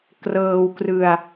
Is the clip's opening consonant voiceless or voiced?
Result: voiceless